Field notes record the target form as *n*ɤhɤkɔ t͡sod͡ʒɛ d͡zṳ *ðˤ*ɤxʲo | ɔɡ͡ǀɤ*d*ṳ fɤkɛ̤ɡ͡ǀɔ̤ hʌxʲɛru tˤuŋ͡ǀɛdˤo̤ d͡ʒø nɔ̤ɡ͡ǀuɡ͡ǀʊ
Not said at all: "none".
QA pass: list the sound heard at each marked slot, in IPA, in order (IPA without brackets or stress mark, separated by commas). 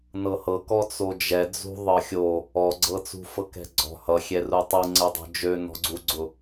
n, ðˤ, t͡s